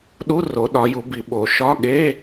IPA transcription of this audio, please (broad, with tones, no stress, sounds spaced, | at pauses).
ɗ u˧˥˧ r o˩˧ ɗ ɒ˩˧ j u˩˧ b i˩˧ ɓ o˩˧ ʃ ɒ˧˥˧ ɠ e˧˥˧